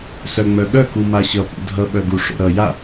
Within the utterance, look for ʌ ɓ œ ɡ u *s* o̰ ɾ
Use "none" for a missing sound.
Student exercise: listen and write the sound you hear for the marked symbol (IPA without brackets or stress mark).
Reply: ʂ